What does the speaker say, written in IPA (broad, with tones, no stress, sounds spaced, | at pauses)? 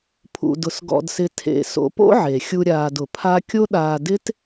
pʰ ṵ˧ d ʊ˧ s ɡ ɔ̰˧ d s ɪ˧ tʰ ḛ˧ s o̰˧ p o̰˥ ʕ e˩ xʲ u˧ ɾʲ aː˧ d ʊ˩ pʰ a˥ kʲ o˥ ɗ aː˧ d ɪ˥ t